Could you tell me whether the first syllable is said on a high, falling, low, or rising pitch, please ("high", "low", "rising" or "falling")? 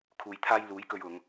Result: low